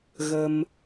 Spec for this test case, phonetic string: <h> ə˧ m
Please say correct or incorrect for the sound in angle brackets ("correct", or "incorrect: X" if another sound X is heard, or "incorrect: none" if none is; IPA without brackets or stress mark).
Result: incorrect: ɣ